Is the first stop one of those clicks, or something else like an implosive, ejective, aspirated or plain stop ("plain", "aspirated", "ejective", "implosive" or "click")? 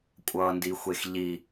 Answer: ejective